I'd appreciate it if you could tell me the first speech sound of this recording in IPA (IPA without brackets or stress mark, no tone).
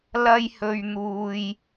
l